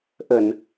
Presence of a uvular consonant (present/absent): absent